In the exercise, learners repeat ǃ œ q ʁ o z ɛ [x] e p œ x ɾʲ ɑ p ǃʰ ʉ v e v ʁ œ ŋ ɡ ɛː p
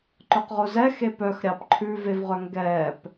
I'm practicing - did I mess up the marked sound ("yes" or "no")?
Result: no